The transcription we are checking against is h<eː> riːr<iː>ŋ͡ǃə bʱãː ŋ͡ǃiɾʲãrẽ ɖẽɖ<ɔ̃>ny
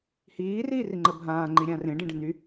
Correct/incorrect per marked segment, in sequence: incorrect, incorrect, incorrect

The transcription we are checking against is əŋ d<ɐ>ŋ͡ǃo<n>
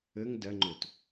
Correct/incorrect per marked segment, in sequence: correct, incorrect

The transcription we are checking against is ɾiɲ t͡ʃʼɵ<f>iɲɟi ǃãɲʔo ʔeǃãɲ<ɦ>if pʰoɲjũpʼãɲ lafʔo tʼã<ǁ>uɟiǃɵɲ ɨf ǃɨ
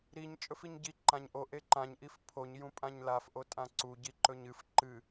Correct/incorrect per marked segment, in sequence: correct, incorrect, incorrect

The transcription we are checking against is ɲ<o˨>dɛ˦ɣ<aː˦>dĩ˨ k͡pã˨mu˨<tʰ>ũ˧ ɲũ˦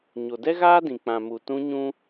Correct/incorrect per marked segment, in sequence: correct, correct, incorrect

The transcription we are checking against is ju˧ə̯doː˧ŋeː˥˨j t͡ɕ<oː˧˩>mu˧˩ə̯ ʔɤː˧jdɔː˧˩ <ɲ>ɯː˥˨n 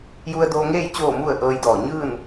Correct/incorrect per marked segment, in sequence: correct, correct

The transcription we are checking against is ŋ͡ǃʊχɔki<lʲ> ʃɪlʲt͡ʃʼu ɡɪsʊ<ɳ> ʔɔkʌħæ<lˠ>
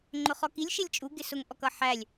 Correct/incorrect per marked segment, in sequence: correct, incorrect, incorrect

